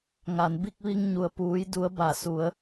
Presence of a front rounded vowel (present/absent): absent